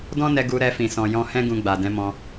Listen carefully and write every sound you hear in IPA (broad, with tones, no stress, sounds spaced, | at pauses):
d ɔ̃˦ n ɛ˧ ɡ u˧ ɾ ɛ˧ f ĩ˨ s ɔ̃˨ j ɔ̃˧ h ɛ̃˦ ɡ ũ˧ ɡ͡b a˨ d ɛ̃˨˦ m ɔ̃˧